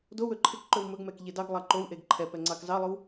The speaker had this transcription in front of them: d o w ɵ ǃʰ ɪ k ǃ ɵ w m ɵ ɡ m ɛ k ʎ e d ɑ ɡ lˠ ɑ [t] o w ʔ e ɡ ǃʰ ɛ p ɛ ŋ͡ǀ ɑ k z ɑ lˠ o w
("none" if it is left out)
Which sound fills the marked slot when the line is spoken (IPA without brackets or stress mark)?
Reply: ǃ